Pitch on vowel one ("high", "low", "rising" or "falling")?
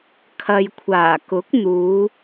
low